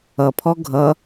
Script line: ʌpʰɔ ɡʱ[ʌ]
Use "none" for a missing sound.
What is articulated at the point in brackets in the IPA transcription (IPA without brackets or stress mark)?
ʌ